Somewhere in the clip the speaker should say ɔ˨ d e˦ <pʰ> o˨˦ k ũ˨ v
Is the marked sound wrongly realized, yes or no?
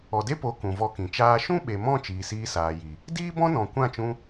yes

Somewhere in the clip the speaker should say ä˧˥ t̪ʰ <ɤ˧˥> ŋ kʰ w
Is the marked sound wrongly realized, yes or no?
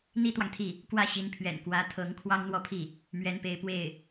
no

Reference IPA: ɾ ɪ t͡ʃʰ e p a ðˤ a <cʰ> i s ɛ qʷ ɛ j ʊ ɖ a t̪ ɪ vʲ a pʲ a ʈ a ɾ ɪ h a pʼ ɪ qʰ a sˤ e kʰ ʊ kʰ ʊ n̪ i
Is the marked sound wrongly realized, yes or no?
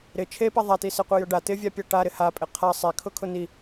yes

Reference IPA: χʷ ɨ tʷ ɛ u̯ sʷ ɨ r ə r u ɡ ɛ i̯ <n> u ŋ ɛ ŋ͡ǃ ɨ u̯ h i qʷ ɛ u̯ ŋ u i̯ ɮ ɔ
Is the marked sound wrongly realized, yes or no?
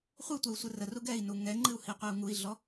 no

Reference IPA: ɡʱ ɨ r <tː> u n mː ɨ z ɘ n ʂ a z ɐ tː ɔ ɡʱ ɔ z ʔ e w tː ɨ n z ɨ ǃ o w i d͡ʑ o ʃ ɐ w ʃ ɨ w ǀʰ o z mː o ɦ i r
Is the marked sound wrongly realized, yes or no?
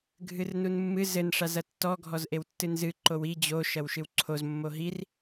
yes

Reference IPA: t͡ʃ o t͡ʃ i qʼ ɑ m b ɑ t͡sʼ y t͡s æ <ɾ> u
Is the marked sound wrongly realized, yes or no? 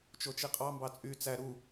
no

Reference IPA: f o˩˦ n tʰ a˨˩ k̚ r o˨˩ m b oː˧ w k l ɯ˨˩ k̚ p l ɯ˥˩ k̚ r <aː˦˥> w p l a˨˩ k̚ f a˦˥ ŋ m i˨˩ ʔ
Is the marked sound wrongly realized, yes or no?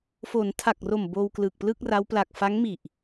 yes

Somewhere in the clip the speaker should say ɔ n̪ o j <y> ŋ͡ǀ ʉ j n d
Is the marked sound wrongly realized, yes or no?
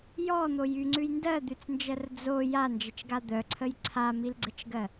no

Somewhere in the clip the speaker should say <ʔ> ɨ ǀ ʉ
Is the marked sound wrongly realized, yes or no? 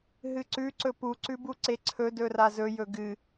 yes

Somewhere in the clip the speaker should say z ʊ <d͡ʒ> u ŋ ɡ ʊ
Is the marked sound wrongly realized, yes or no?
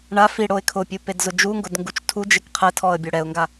no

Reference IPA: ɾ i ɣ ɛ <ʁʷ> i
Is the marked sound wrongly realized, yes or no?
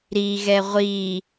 no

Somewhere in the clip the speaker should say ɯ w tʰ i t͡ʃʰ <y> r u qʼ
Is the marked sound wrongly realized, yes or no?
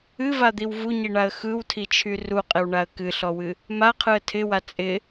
no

